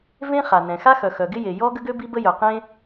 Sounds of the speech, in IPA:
vẽ˥ χa˩nɛ̃˩xa˥ xœ˩xœ˩ɡɪ˥je˩ jɔ˥ ɡə˥ɡø˥ bi˥bə˥jœ˩ qẽ˥

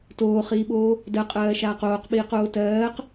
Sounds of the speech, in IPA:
toːχiːɓoː | dɜqʼɜːʃaːq oːqɓiːqoː tɜːq

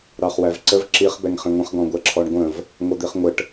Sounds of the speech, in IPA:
ɾɑχwævǀəv ǁiχ bɛŋχĩŋʷə̃χ ɡɔ̃ɡʷɛǁʰɔɳɡʷə̃v | ŋʷʌd̪iχŋʷəʈ

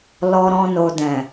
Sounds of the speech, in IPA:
lɔ˧ɾɔ̃˧ no˨dɛ̃˨

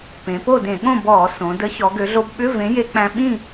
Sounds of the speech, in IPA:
pẽ˩˧po˥˨dẽ˧˩˧ɠõ˥˨ bɔː˧˩˧ sõ˩˧ də˨˥ çɔ˩˧ɡø˩˧ɮo˧bɓʏ˧˥˧ vẽ˨˥je˧k͡pæ̃˧ ɓĩ˥˨

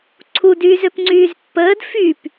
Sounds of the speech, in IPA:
ǀʰudyːz øpŋ͡ǀyːzpːəːd fyp

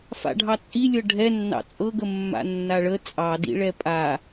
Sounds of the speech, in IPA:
fa̰ɖʱɑt͡sʼilʲɤ ɖʱɛnːɑ̰ t͡sʼɤɡə mːa̰nːaɭə t͡sʼɑdḭɭɛ pʼa

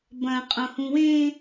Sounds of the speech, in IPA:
bɐ̃ qʼõhũwẽ

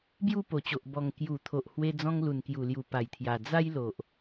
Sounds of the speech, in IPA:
bju˥˧po˨˩t͡ɕo˨ʔ bɔ˨˩ŋ kju˨˩t̪ʰo˨ʔ hwe˦ d͡zɔ̃˦ŋlu˨˩nkju˨˩lju˨˩ pa˨˩jt̪ʰja˨˩ d͡za˦jlo˨ʔ

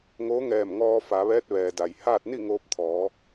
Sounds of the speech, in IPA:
ŋoː˧˥ŋɛː˧˩m ŋɔː˧fa˩˧ʋɛː˧˥t̚ ʋɛː˩da˩jhaː˥˨t̚ ni˥˨ŋoː˧p̚ t̪ʰɔː˩˧

